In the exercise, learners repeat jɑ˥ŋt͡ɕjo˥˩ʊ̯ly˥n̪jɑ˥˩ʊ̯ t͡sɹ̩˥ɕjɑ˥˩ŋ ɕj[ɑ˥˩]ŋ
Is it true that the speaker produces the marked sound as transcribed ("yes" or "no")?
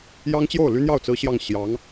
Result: no